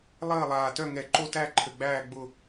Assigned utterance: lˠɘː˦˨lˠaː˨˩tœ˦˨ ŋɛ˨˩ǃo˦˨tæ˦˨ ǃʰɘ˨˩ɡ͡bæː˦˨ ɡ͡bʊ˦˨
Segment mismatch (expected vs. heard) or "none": none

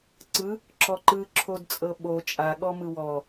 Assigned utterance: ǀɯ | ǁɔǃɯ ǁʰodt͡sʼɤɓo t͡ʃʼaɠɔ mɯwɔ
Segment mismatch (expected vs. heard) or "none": none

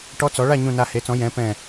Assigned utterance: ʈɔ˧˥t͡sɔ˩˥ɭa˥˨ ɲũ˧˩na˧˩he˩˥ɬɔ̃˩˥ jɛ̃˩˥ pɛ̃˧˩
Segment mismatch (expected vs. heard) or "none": ɬ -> t͡s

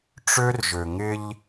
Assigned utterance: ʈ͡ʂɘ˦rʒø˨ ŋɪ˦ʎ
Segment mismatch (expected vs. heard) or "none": ɘ˦ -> ø˦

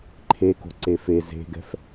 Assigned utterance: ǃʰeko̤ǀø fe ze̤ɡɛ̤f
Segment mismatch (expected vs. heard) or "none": ø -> e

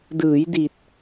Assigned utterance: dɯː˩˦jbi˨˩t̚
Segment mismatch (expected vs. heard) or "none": b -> d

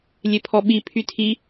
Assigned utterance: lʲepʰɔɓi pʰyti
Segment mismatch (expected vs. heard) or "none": t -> tʰ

